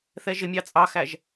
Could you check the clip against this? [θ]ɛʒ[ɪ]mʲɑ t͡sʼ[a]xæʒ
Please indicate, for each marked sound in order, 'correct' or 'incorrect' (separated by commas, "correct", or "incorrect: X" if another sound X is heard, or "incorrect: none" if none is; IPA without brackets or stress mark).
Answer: correct, correct, incorrect: ɑ